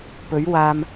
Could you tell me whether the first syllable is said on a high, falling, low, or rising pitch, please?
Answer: rising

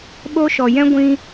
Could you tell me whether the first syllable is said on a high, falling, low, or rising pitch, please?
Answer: high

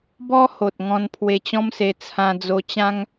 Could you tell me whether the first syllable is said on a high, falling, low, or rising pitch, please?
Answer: high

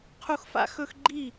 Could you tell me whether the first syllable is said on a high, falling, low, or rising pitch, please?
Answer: high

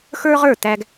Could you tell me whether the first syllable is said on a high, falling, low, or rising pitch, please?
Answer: high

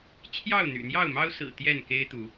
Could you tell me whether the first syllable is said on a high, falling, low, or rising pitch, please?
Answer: falling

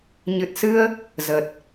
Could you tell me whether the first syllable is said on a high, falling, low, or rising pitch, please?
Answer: low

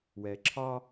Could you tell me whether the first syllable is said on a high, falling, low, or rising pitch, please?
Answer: low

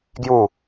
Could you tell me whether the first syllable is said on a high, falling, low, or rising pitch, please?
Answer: falling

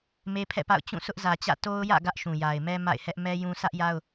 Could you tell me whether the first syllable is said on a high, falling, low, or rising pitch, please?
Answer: high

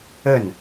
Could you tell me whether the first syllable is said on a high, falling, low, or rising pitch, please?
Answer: falling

